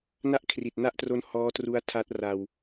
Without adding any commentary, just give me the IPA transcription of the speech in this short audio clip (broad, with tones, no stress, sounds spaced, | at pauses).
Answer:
n a˥˩ ʔ kʰ r i˨˩ t̚ n a˥˩ ʔ t r o˦˥ n h ɔː˦˥ t r u˦˥ a̯ tʰ a˦˥ t̚ r a˧ w